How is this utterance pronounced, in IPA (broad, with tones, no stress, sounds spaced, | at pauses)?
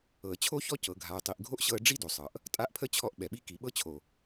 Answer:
ɤ˨ ə̯ t͡ɕʰ o˦ ç ɔ˦ c ɤ˨ ɡʱ a˨ ə̯ tˤ i˨ ʔ ɡʱ o˦ ʔ ɕ ɤ˧ ə̯ ɖ͡ʐ i˦ d o˨ sˤ ɤ˨ ʔ | tʼ a˦ ʔ pʰ ə˦ t͡ɕʰ ɔ˧ ʔ ɓ ɛ˨ ɓ i˦ k i˨ ɓ ɤ˧ t͡ɕʰ o˨